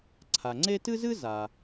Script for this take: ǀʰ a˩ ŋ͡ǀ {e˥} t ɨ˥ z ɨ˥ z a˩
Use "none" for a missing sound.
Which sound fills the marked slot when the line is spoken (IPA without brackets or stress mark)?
e˥